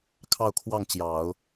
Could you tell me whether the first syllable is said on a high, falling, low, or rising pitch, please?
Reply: falling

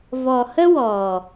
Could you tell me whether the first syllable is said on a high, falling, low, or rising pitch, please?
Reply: low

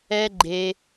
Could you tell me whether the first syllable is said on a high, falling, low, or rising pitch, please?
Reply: high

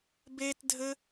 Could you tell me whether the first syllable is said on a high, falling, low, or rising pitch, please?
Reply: high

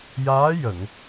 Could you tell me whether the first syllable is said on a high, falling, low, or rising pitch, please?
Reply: rising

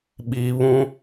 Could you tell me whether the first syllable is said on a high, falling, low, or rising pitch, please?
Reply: low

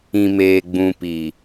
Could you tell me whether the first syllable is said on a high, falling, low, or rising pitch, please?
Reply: low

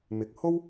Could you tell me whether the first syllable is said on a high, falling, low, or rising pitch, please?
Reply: rising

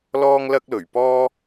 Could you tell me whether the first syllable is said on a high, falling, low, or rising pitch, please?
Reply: high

